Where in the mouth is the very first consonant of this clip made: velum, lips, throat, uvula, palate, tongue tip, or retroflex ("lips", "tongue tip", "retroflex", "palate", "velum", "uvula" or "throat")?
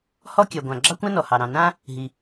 throat